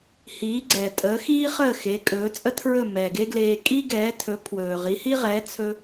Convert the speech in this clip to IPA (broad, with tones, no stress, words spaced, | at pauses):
hiː˩˥ɡ͡ǀɛ˩tʼəː˩˥ xiː˥χəː˥˩ xe˩˥kʼɵː˩˥t͡sʼə˥tʰɹɵ˥˩ mɛː˩ɡe˥ɡleː˧ kʼi˥ɡɛː˩˥tʰɵ˩˥ pʰwɵː˩ʁi˩˥hi˥ʁɛː˩˥ t͡sʰɵ˧